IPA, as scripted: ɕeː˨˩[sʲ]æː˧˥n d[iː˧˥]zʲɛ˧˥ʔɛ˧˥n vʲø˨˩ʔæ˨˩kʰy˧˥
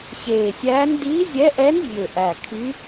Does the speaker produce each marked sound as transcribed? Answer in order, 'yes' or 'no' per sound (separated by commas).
yes, yes